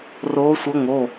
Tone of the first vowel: rising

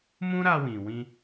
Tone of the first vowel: high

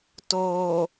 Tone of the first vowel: low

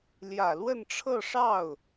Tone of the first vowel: low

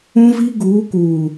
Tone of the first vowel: high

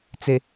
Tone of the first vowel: low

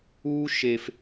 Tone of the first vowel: high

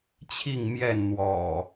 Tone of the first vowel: falling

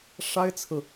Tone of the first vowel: high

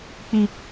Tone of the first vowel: high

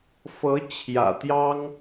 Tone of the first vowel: rising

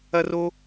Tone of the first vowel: high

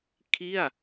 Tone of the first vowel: falling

